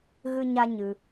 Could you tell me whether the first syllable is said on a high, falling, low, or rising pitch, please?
high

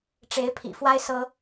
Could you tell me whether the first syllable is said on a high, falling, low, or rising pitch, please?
rising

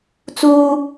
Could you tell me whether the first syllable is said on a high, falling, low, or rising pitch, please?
high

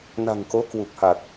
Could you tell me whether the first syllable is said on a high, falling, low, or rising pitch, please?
low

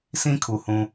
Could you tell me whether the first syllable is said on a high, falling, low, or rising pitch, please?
high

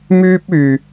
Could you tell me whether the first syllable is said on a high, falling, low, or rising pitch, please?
high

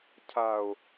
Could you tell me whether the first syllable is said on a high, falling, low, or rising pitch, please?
low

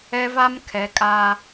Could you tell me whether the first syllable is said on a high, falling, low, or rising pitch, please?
high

